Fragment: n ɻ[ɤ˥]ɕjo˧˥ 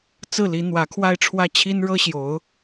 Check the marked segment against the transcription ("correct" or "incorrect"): correct